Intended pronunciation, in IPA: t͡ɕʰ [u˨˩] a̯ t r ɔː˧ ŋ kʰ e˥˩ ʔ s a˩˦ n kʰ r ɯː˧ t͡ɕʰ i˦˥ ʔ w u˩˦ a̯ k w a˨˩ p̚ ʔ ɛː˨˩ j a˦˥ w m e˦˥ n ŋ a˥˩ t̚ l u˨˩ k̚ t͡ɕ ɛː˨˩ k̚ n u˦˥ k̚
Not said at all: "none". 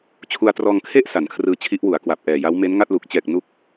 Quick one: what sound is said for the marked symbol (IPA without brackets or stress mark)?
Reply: u˧